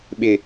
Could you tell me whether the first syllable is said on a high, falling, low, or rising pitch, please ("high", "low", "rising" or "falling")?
low